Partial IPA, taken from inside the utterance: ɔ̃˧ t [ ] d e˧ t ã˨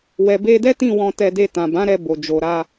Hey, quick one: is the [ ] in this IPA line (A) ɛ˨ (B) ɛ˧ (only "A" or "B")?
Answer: B